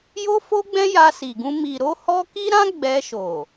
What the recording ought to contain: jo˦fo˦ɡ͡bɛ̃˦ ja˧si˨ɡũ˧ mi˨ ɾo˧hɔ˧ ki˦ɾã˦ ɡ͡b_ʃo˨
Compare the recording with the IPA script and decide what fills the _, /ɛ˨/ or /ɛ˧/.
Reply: ɛ˧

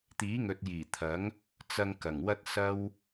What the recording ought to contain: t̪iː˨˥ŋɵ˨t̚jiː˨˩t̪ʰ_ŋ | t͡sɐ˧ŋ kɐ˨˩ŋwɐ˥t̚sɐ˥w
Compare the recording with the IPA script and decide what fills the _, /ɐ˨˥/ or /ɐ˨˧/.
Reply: ɐ˨˥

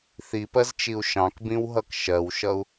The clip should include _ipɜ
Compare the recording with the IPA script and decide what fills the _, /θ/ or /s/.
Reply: θ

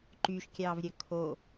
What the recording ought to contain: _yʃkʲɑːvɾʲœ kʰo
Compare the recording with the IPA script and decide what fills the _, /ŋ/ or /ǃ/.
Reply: ǃ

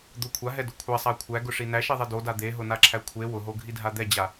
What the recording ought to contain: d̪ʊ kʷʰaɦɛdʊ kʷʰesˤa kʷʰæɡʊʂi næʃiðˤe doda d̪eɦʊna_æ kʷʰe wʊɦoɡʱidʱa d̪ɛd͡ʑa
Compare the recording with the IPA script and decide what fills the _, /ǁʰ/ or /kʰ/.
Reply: ǁʰ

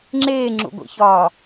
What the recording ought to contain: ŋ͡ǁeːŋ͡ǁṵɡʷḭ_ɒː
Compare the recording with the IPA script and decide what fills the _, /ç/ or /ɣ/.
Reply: ç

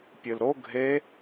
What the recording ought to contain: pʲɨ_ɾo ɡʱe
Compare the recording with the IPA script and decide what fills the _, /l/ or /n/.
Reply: l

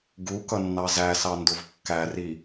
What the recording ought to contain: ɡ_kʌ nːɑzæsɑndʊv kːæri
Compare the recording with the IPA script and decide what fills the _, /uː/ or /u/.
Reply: u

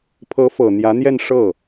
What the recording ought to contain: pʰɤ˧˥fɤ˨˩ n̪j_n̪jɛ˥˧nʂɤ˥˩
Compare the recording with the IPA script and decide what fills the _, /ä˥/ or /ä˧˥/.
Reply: ä˧˥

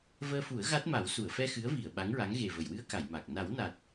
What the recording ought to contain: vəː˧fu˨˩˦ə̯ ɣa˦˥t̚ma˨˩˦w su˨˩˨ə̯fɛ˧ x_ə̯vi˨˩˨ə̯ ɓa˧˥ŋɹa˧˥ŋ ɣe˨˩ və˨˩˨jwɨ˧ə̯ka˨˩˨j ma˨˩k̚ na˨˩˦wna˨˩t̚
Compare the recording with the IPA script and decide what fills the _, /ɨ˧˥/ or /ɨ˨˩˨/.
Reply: ɨ˧˥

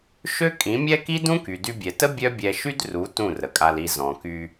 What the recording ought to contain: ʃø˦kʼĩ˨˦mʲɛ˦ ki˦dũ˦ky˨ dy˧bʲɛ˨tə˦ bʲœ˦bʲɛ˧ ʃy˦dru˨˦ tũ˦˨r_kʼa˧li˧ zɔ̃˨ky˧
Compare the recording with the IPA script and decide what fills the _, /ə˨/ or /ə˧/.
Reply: ə˨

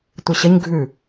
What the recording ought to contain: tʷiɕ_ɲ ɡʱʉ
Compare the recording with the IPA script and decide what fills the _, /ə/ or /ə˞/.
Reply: ə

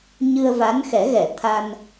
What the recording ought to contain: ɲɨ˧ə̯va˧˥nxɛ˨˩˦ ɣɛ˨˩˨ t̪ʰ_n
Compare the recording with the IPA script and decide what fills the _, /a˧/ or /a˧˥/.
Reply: a˧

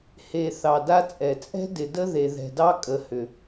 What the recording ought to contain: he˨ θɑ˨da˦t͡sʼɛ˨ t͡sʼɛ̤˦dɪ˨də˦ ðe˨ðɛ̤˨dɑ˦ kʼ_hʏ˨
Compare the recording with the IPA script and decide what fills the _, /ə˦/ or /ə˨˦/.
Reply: ə˨˦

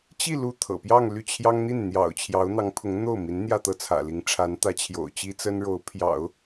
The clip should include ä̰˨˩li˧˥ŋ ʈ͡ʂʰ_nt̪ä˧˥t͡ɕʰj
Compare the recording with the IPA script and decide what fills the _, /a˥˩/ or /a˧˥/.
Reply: a˧˥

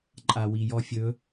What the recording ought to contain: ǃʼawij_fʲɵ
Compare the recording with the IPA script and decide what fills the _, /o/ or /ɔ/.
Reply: ɔ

